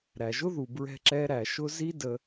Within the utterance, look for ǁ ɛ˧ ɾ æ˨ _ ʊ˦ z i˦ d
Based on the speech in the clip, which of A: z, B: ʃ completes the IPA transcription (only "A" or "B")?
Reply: B